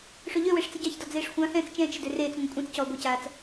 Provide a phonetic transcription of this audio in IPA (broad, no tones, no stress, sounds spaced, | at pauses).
ʂ ø ʎ ø w e ʂ t͡s ə ɟ ɑ ç d ɔ d͡z eː ʂ xʷ ã h ɛ̃ː t͡s t͡ʃ ɛ̃ː t͡ʃ ə d ø r eː t͡s ŋʷ ə̃ kʷʼ ɛ̃ t͡s c ɔː ɡʷ ə c aː t͡s